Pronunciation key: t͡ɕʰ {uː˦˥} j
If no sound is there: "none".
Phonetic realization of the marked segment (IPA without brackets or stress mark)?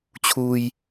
uː˧